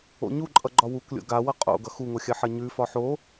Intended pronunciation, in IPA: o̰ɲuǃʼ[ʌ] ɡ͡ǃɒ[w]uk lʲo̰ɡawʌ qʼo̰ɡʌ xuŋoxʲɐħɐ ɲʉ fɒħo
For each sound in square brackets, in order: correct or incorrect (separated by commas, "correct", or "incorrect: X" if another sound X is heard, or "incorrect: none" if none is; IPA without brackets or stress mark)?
correct, correct